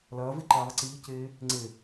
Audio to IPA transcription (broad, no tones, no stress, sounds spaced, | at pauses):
l ɐː v e ǃ iː ðˤ i ǀ iː c eː | ŋ͡ǀ e